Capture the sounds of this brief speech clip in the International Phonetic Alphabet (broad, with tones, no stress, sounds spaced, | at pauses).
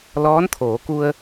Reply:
l ɔː˧˥ n t̪ʰ oː˩˧ k u˧ ə̯